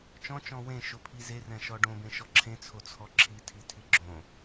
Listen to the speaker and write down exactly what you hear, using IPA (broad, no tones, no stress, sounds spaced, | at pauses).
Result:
t͡ʃ ɔ̃ t͡ʃ ɔ̃ w ẽ ʃ o pʰ i z e r ɛ̃ ʃ ɔ ɖ õ b ẽ ʃ ɔ ǁʰ ẽ t͡sʰ o t͡sʰ ɔ ǁʰ i tʰ i tʰ i ɡ͡ǁ õ